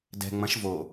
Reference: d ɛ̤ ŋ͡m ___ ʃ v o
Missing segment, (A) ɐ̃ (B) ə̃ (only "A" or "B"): A